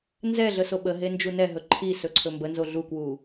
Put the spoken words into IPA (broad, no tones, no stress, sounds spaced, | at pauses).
n z ɛ ɮ ə s o ɓ ə ɦ e n d͡ʒ u n ɛ ɦ ɵ ǃʰ i s ɵ ǀʰ ɵ m b ə n z o ɮ u k w u